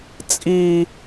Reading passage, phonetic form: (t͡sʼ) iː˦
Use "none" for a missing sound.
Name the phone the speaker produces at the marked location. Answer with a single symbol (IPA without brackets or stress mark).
t͡sʼ